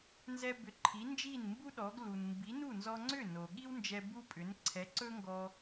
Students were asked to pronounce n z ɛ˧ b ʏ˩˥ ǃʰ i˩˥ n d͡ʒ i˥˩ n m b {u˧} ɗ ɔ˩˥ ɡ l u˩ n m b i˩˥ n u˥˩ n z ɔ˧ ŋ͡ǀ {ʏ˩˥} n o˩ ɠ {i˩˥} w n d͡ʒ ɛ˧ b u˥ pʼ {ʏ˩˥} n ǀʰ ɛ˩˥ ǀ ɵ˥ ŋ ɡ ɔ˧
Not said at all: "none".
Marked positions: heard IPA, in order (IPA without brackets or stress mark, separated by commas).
u˥, ʏ˥˩, i˥, ʏ˩˥